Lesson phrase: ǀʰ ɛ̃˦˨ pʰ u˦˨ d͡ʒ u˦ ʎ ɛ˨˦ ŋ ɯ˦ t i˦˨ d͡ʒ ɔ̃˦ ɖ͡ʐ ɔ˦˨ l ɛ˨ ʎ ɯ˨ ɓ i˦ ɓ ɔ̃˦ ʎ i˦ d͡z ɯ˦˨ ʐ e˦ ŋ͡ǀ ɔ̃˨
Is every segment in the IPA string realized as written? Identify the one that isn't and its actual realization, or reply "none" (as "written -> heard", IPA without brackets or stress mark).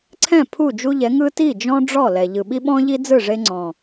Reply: none